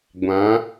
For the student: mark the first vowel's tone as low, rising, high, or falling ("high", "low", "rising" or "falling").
rising